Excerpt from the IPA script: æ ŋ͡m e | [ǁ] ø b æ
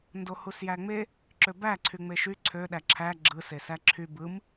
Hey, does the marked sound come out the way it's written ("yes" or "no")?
yes